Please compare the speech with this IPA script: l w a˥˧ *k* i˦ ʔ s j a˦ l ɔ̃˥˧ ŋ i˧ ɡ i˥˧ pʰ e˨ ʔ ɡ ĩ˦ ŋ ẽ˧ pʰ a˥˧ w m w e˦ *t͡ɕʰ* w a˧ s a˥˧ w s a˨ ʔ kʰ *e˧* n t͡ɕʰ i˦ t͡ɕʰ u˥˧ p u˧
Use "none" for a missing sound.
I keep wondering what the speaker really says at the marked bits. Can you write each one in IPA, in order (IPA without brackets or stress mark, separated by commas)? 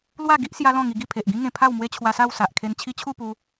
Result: ɡ, t͡ɕʰ, e˧